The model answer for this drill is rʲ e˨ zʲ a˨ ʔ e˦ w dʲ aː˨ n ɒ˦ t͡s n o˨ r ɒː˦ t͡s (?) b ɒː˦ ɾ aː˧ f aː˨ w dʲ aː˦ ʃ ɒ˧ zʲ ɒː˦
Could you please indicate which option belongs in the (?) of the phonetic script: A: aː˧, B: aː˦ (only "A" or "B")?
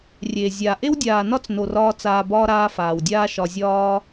A